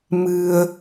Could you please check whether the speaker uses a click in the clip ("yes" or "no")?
no